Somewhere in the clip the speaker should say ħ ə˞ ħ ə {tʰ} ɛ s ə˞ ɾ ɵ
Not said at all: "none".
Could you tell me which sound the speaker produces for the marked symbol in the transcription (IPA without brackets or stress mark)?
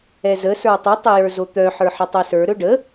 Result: tˤ